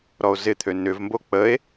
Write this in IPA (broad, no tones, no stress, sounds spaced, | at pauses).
ɾ ɔ o̯ z ɪ t̪ʰ ø n ʏ v m b o k͡p ə e̯